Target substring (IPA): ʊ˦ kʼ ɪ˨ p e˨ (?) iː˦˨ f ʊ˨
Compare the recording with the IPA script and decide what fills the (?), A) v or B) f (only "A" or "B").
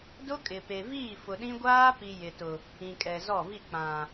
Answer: A